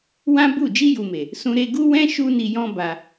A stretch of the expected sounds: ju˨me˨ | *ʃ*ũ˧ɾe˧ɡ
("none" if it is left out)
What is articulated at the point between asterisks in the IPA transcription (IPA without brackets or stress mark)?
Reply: s